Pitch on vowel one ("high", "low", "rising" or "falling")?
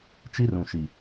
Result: high